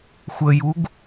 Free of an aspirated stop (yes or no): yes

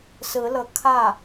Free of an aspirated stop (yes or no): no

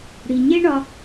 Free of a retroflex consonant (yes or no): no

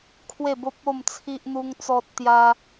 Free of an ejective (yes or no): yes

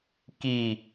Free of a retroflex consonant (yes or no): yes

